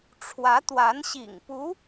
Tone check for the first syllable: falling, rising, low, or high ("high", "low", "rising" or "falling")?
rising